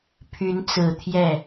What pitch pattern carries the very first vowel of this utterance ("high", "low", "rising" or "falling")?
rising